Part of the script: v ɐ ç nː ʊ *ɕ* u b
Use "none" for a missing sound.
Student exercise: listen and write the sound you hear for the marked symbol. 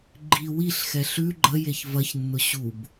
ɕ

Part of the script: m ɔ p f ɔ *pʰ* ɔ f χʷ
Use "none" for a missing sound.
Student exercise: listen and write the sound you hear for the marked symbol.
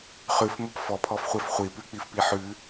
pʰ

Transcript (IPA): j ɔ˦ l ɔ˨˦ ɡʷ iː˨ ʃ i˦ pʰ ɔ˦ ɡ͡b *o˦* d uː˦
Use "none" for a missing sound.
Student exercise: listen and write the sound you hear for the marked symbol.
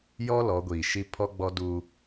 ɔ˦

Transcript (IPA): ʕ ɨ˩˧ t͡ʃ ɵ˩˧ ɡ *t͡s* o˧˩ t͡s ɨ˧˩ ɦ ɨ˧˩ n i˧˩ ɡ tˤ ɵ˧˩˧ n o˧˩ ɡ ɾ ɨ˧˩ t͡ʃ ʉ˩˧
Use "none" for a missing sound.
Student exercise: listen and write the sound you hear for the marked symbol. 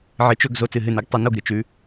z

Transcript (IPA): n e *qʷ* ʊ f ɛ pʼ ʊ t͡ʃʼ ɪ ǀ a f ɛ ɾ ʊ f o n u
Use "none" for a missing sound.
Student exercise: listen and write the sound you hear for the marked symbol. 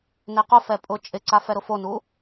q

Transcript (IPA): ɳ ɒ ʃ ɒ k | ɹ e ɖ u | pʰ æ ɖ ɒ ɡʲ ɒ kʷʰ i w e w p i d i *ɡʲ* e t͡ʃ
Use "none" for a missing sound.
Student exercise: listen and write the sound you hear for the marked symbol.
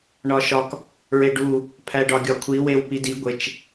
ɡʷ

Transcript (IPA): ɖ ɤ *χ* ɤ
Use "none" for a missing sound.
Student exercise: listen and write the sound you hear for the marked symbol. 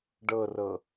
r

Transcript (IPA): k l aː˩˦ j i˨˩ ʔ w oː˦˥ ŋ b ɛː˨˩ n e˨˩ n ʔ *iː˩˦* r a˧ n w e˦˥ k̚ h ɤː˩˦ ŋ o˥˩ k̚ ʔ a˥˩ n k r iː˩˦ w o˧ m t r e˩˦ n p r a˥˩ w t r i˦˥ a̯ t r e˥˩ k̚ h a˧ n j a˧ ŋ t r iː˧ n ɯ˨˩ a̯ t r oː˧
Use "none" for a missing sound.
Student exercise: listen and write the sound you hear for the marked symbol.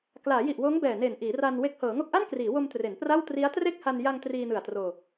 iː˩˦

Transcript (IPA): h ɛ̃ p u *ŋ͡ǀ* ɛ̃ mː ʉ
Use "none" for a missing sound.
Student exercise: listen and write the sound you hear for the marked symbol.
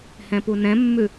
n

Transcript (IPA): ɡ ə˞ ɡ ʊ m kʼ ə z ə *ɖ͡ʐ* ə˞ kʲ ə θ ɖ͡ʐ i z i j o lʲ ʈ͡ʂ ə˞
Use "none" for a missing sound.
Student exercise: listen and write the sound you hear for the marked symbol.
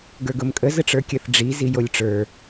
ʈ͡ʂ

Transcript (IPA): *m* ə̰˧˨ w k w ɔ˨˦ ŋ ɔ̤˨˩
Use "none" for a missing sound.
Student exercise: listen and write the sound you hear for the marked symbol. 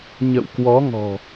ɲ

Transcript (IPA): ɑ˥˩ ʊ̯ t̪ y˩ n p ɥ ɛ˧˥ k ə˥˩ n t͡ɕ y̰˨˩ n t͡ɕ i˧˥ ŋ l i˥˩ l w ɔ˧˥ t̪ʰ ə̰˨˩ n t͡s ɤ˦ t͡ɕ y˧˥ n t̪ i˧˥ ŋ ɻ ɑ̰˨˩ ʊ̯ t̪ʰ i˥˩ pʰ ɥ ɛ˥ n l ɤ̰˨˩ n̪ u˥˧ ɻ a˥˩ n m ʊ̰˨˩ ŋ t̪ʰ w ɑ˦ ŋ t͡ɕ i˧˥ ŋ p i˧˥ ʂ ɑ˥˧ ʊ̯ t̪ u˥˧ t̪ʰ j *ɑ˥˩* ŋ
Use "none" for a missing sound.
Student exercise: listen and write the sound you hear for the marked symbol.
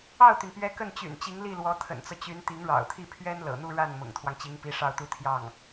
ɑ˥˩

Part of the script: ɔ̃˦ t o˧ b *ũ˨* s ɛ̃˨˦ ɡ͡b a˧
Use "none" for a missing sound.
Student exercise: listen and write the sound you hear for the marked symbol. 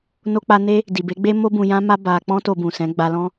ũ˨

